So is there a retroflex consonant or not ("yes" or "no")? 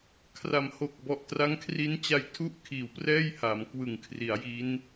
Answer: no